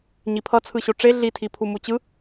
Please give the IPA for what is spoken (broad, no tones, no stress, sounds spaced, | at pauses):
ɲ i pʰ ʌ t͡sʰ ɯ ɕ o ʈ͡ʂ e ɮ i tʰ i pʰ u m u t͡ɕ ɯ